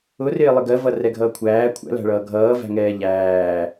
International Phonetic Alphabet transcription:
ʊrɪː lˠɪɡɜvʌ rɛɡʱʌːkʷʰæː kʷʰæ̰læ̤ɭʌː ɡʱʌːvæ̤ŋɛː ʎæː

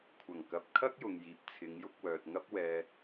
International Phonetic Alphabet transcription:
kʷʰɐ˨˩ŋkɐ˨p̚ kʰɐ˥k̚jʊ˨ŋjiː˨p̚ t͡sʰɪ˨˧ŋjʊ˧k̚wœː˨t̚ ŋɐ˥p̚ wɛː˧

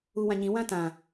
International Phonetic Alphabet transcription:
uwãɲĩ wãtã

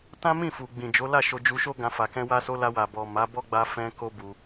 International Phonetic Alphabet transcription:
tã˦mĩ˦˨fu˨ɡ͡bĩ˨ d͡ʒo˨˦la˦˨ ʃo˧ d͡ʒu˧ʃo˦ ɡã˧fa˨ kɛ̃˧wa˧so˧ la˧wa˨bɔ˨ ma˨˦bɔ˦ɡ͡ba˧ fɛ̃˧ ko˦bu˧

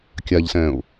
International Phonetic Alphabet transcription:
kʲaʎsɛ̃ːʊ̯

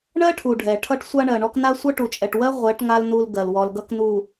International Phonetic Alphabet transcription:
ɳɜ˦ʈʰu˨ ɖʱɛ˨ ʈʰʌ˦ʈ sʷa˦ɳɜ˨ɳɔ˦k na˦ sʷʌ˦ʈu˨t͡ʃʼɛ˨ʈwɜ˦ ʁʷɛ˨˦ʈ ŋa˦l nu˦lɡɜ˨lwɔ˨lɡʌ˦k nu˨

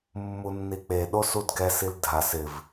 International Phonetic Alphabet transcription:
mːunːik͡pe ɗosudɡɛs ildʱas ɪv

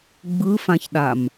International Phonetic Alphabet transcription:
ɡ͡bɯfãçɗam

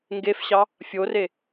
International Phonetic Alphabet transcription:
ŋɡefɕɑ | fʲore

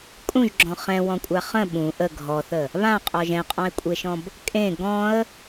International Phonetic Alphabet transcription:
kʼũʒɡ͡ǁɔ̃ χɛ̃wɔ̃kʷʼa χə̃ ɓũ ʔə ɡʱɔθə | βãqʼɔʒ ɛ̃qʼɔ̃ɪ̯kʷʼeʃɔ̃b | kʼẽ ɡɔ̃ə̯

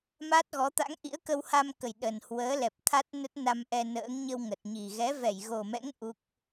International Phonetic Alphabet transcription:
ma˦˥t̚ɣɔ˨˦t̪a̰˧˥ŋ ʔḭ˧˥ə̯kə˧wha˧mkə˨˩j ɗə˨˩nhwəː˨˦ lɛ˨˩p̚t̪ʰa˦˥t̚nə˦˥t̚ na˧mʔɛ˧ nə̰ː˧˥ŋ ɲə˧wŋə˨˩t̚ɲi˨˩ ɣɛ˨˦vɛ˧˩jɣo˨˩mɛ̰˧˥ŋ ʔu˦˥k̚

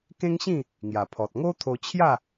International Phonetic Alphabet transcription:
kẽ˦ŋɕĩ˥˧ | ŋja˨˩pʰɔ˨t̚ ŋo˦t̪ʰo˧t͡ɕʰja˥˧

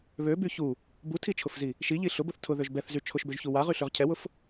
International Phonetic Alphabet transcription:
βøby çu | butʰit͡ʃʰʊfzi | ʃiʎi ɬʊbʊθ tʰʊðøʒ bɛθzy t͡ʃʰʊʃbøʒçu waʁyɬøʁ cʰɛwʊf

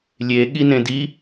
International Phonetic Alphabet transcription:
lʲe ɠinẽdi

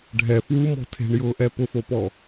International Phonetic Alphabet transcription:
ɖʱɛ fwumɔ̤ tʰe̤ɳjʊːʔɛ pʊfopɔ

